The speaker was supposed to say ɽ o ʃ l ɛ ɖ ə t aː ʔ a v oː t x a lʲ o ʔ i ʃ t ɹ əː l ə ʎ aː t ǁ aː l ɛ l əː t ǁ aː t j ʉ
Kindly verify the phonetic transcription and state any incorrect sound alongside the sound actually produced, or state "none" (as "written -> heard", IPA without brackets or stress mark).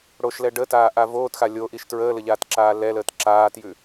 none